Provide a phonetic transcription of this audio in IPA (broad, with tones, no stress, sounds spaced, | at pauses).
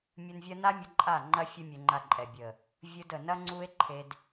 mʲ ɯ˧ n vʲ ɐ˦ n a˦ mʲ ə˧ ǃʼ a˦˨ ŋ͡ǃ ɐ˦ fʲ ə˦ mʲ ɘ˧ ŋ͡ǃ a˧ ǃʼ ɛ˨ bʲ ə˨ | vʲ ɯ˧ d ə˨ n ɐ˦ ŋ͡ǀ u˦ e̯ ǃʰ e˧ d